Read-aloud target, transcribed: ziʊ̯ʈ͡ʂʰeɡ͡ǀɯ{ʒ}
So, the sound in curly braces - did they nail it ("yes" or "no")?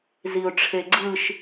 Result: no